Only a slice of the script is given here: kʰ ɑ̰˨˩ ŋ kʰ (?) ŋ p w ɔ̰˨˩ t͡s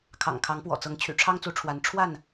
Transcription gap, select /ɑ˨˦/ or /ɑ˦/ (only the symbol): ɑ˨˦